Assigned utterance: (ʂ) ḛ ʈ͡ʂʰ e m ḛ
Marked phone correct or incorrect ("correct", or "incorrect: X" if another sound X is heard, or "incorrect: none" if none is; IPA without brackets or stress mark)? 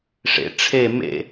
correct